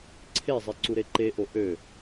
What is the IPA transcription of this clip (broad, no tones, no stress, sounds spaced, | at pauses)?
ǀʰ e zˤ i ǀ u ɾ e ǃ e ʔ o ʔ ø